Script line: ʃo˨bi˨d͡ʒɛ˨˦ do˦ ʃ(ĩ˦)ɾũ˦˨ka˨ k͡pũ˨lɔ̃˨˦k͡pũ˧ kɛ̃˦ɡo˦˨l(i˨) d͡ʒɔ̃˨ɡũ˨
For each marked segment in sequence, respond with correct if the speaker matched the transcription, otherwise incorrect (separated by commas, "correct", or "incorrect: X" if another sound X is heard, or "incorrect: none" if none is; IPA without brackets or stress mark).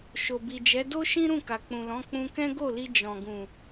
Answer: correct, incorrect: i˧